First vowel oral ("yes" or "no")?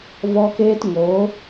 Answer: yes